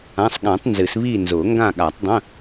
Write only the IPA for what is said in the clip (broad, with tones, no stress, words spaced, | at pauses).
ã˧˥˧sˤ ɠã˨˩˦tˤ nzɨ˨˩˦s βiː˦˨nzʊː˨˩˦ ŋɡã˦˨ɠa˨˩˦tˤdˤə̃˧˥˧